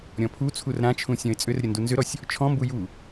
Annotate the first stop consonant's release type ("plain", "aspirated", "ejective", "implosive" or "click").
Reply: aspirated